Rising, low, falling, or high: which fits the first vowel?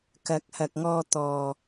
rising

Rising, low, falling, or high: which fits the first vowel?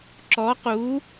rising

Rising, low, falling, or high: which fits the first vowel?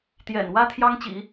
low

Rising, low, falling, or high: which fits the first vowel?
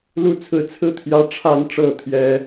falling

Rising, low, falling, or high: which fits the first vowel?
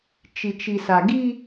low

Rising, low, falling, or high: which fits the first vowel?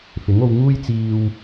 rising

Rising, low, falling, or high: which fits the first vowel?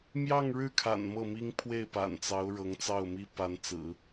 falling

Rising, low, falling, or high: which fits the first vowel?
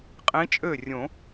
rising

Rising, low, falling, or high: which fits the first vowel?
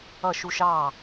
falling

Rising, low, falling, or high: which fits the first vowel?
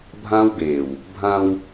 high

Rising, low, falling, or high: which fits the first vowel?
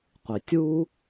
low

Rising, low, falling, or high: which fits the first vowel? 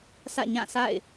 falling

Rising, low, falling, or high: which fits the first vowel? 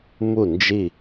falling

